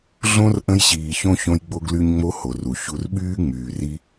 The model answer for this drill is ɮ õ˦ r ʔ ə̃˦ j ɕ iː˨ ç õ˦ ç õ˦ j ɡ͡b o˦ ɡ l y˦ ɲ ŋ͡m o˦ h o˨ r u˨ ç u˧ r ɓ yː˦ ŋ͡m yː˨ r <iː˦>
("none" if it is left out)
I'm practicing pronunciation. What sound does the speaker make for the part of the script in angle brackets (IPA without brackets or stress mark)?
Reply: i˦